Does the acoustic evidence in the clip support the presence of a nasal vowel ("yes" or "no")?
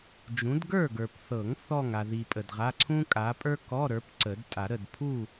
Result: yes